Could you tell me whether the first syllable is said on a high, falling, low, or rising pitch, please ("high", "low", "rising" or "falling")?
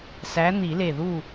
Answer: rising